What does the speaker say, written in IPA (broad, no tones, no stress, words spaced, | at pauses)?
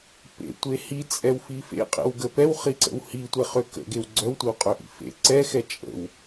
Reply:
pḛtʷe hit͡sʼɛwfi fḛqʼḛwɡə pɛwχiǀə̰w hitʷɛχø kə̰ɡew ɡ͡ǀœwtʷɛwqʼøʔḭ fḛ ǀɛxɛ t͡ʃʼə̰w